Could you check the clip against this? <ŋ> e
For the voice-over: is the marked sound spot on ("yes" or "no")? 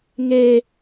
yes